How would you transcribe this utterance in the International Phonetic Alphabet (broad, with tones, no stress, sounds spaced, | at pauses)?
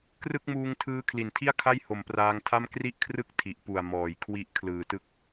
k r ɯ˥˩ k̚ m uː˧ ŋ tʰ ɯː˦˥ kʰ l i˨˩ n tʰ i˥˩ a̯ kʰ a˥˩ j h o˨˩ m p r aː˧ ŋ tʰ a˥˩ m k r i˥˩ ʔ kʰ r ɯ˥˩ k̚ tʰ i˨˩ ʔ p u˨˩ a̯ m ɔː˨˩ j kʰ w i˦˥ ʔ kʰ l ɯː˨˩ t ɯ˦˥ k̚